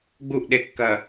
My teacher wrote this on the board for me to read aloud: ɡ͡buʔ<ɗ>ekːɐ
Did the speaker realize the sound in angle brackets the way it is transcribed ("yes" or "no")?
yes